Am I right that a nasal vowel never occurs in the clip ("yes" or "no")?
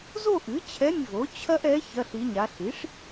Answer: yes